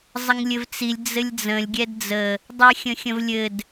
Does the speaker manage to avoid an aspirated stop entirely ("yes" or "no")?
yes